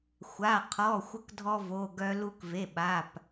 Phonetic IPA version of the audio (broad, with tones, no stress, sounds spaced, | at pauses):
xʷ a˩˧˩ qʰ ɔ˩˧˩ xʷ ə˧ k dʱ ɔ˧ v o˩˧˩ ɡ œ˧ l u˧ k v e˩˧˩ ɓ a˩˧˩ p